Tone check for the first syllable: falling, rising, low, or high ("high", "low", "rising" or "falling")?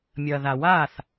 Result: low